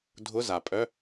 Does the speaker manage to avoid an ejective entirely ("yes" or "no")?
no